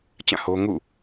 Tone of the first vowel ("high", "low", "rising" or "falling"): falling